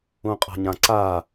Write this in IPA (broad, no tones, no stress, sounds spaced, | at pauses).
ũ qʼ a̤ ɲ ã ǀ a